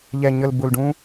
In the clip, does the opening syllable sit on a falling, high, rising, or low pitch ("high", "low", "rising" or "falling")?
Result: low